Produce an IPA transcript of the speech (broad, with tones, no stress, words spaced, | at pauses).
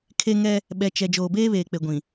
kʰe˦ ŋɛ˦ | ɓɛ˨t͡ʃɛ˨ d͡ʒoː˨beː˦βeː˨k͡pe˨ ɡʷĩ˨